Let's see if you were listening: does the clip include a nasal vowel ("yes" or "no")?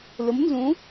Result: yes